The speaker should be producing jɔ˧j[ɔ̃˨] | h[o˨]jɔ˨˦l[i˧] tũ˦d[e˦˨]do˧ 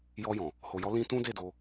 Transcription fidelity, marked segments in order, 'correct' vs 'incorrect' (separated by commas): correct, correct, incorrect, correct